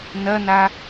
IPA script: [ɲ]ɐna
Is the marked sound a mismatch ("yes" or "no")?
yes